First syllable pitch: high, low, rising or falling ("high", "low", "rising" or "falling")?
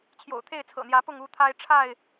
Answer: low